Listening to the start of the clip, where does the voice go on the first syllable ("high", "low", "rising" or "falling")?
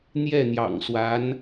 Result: falling